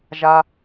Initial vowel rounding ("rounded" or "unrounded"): unrounded